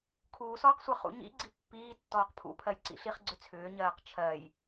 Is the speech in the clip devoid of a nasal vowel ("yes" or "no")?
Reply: yes